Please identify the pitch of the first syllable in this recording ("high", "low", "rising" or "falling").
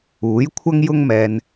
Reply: rising